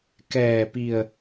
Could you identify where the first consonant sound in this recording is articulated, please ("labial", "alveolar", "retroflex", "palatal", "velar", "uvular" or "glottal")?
velar